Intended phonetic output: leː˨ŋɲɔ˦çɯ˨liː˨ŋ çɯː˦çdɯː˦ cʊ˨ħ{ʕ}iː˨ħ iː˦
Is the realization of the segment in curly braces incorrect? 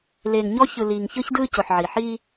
no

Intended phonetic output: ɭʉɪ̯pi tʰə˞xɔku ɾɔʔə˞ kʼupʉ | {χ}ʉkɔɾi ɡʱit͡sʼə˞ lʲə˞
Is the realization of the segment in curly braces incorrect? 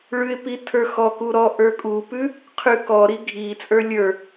yes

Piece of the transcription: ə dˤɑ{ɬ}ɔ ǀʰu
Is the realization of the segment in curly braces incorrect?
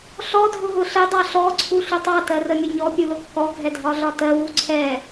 no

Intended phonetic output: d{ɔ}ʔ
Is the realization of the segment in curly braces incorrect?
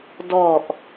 no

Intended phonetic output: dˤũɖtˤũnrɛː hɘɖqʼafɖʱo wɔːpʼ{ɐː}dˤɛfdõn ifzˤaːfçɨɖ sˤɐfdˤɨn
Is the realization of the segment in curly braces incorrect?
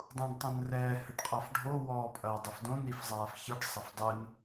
no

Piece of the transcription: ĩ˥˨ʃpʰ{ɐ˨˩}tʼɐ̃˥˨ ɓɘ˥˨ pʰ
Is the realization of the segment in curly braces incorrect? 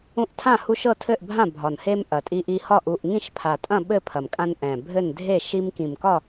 yes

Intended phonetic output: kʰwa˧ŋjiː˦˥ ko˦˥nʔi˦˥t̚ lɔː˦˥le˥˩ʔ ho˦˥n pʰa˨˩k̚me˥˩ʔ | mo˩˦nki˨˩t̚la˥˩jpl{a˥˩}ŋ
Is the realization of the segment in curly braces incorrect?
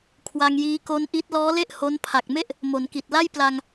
yes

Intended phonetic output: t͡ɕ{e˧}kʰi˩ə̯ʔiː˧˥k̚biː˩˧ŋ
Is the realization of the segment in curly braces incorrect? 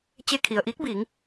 no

